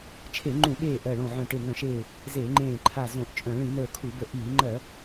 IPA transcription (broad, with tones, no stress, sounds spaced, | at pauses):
t͡ʃʰ e˧˩˧ ŋ͡ǃ ũ˧˩˧ ɓ eː˧˩ ʔ ɜ˧˩ ɭ õ˧˩ ʕ œ̃˧˩ ʈ e˧˩ ŋ œ̃˧˩˧ ʃ eː˧˩ | z e˧˩˧ ŋ͡ǃ ẽː˧˩ ǃʰ a˧˩ z õ˧˩˧ ʔ t͡ʃʼ œ̃˧˩˧ ɭ ĩ˧˩˧ n ə˞˧˩ kʰ u˧˩˧ b ə˧˩ ʔ iː˧˩˧ ŋ͡ǃ ɜ˧˩˧